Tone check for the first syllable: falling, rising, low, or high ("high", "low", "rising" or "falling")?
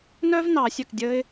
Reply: high